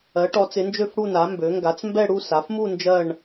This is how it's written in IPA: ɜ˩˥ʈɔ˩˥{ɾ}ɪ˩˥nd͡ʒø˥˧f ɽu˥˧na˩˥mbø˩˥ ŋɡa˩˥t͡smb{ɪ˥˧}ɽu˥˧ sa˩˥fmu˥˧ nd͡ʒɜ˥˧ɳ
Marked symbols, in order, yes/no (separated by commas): no, no